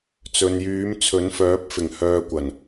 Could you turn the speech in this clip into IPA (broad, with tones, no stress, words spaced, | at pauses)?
t͡sɵ˨njyː˨˥mt͡sʰɵ˨˥nfœː˨˥p̚ fɪ˨˩ŋhœː˨ kʷɐ˨˩n